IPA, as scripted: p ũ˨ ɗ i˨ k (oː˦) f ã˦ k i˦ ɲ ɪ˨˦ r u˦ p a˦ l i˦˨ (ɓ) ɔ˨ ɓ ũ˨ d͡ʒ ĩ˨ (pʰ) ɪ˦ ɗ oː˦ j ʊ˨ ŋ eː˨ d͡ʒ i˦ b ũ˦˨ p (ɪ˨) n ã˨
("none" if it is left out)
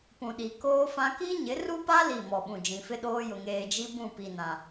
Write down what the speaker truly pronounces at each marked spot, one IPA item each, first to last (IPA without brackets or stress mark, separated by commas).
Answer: oː˦, m, f, i˨